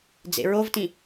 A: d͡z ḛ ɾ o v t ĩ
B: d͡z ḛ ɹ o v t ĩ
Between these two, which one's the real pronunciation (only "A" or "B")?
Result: B